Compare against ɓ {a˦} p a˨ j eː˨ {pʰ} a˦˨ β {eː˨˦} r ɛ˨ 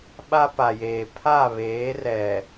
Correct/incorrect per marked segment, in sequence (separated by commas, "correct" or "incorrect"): correct, correct, correct